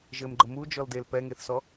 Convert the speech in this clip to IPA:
ʒ ɘ m ɡ͡ǃ ə m u d͡ʒ ɔ l d e l p ɛ ŋ e θ s ɔ

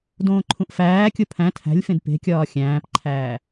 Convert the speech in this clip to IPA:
d õː ǃʰ ũ ʔ f æː kʲ o pʰ æ̃ tʰ æ̤ lʲ f ẽ d p e̤ kʲ ɒː xʲ æ̃ː p ǃʰ æː

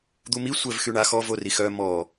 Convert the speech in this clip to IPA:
d̪ u m i sʷ ɛ v x y ɳ a x ɔ v o r i x œ m ɔ

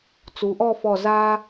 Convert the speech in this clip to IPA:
t͡s u˩˧ ʔ ɔ˥˧ f ɔ˧˩ z a˧

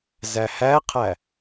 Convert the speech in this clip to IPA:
z æ h æ qʰ æ

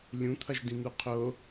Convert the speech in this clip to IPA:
lʲ ũ t̪ʰ ʌ ʒ d ĩ n̪ u qʰ o

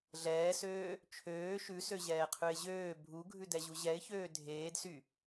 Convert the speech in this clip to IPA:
ɮ ɛː s øː | t͡ʃʰ øː ʃ ʉ s ø ʑ ɛː qʰ ʉ ɪ̯ ʑ øː bʱ u ɡʱ ʉ d ɛ ʑ u ʑ ɛ ɪ̯ ç øː dʱ eː d s y

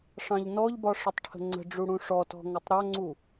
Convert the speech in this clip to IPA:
ʂ ɑ̃ ʎ n ɔ ʎ b ɒ ʂ ə tˤ ʈʰ ə̤ ŋ͡ǀ ə̤ ɖ͡ʐ u ɽ ũ ʂ ɔ t ɔ̤ ŋ ʌ tˤ ɾ ɒ ŋ͡ǀ u

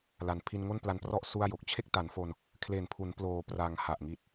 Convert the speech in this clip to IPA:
l a˩˦ n pʰ i˧ n ŋ o˥˩ n p l a˧ n p r ɔ˥˩ ʔ s u˥˩ a̯ j o˨˩ k̚ t͡ɕʰ e˥˩ k̚ t a˩˦ n f o˧ n | kʰ l e˨˩ n pʰ u˩˦ n p l oː˩˦ p r a˩˦ ŋ h a˨˩ ʔ ŋ i˨˩ t̚

